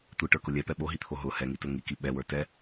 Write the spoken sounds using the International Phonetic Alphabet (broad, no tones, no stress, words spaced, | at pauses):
tʷiʈə˞kʊ lʲɛpɛ ɓoɦit̪ʰo ɦʊ hɛŋitʊ ŋiki ɓɛwə˞ tɛ